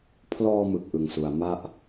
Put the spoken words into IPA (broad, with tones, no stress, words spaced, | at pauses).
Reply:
pʰlɔː˧mɯ˨˩k̚ ʔɯ˧ŋsu˧a̯ma˥˩ʔ